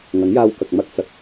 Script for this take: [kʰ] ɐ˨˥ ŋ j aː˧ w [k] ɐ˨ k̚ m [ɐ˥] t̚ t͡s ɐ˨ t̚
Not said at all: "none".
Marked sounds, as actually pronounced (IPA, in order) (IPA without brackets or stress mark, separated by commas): ŋ, k, ɐ˥